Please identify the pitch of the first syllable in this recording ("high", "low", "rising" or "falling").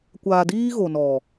low